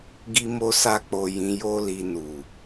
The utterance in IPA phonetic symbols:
ɡ i˦ m o˦ s a˦ k͡p o˧ j ĩ˧ j o˦ l i˧ n u˨

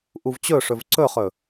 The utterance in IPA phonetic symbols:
ʔ u v t͡ɕ ɵ ʂ ɵ v ǀ ɵ χ ɵ

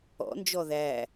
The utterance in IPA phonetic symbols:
ɔ̰ n d͡ʒ ɔ ð æ

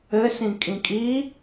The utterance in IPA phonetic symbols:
ɘ s ĩ kʼ ĩ kʼ i

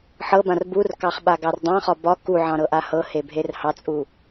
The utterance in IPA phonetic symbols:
ħ ɤ b ã r b u r k ɑ χ ɓ a ɡ ɑ r dˤ ɑ̃ χ ɒ b ɒ k u ʕ ɑ̃ ɾ ɤ ʔ a h ɤ h e bʱ e r h ɑ t͡sʼ u

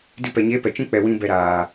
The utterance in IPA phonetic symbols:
d ɨ˦ p ɛ˨ ɲ eː˦ p ɛ˨ t͡ʃ ĩ˦ k͡p ɛ˨ w ĩ˦ b ɛ˧ ɾ aː˨

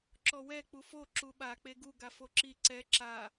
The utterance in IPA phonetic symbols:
ǁ ɔ w ɛ k͡p u f o ǁ u ɓ a k͡p e ɡ u ɡ a f o ǁ i ǀ ɛ ǁ a

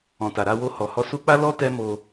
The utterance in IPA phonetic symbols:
ɔ̃˨ t a˨ ɾ a˧ w o˧ h ɔ˨ h ɔ˧ s u˦ k͡p a˦ l ɔ˦ t ɛ˦ m o˧

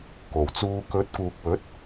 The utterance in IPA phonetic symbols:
k o˨˩ w t͡s uː˧ k ɵ˨˥ t̚ k uː˨ k̚ w ɵ˨˥ t̚

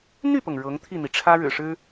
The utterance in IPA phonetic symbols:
n̪ y˥˩ p ɤ˩ ŋ ɻ ɤ˧˥ ŋ t̪ʰ i˥˩ n̪ i˩ ʈ͡ʂʰ ä˥ ɻ ɻ̩˨˩ ʂ ɻ̩˥

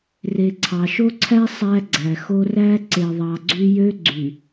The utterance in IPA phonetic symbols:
r e˨ ǀʰ ɑ˨ ʃ o˦ ǀʰ æ˦ sˤ æ˦ ɡ͡ǀ æ˨ x o˦ r æ˦ ǀ e˨ ðˤ ɑ˨ ɡ͡ǀ y˦ j ø˦ ɡ͡ǀ y˨

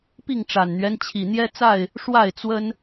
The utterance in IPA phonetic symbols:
p i˥˨ ŋ ʈ͡ʂ a˨˩ n n̪ ɥ ɛ˦ n t͡ɕʰ i˨˩ n̪ j ɛ˦ t͡s a˥˨ ɪ̯ | ʂ w a˥˨ ɪ̯ t͡s w ə˦ n

